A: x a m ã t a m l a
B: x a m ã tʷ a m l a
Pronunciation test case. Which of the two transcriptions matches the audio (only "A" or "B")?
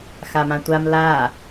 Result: B